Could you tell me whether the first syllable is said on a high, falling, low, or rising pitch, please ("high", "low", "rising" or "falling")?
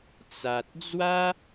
low